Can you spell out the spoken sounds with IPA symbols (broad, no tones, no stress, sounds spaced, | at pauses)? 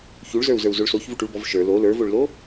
ç u ɭ z ə˞ u̯ z ə˞ u̯ z o ɭ s o ç v u ʈ u ɭ b ɔ v ʃ ə˞ l o l ə˞ v o ɭ l o